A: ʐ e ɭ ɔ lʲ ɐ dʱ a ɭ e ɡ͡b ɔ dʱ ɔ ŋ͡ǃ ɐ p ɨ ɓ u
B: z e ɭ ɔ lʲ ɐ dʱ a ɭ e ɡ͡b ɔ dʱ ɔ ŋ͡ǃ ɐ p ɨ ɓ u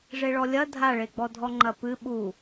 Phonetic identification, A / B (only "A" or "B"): A